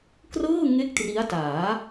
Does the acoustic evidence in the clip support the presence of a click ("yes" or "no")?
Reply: no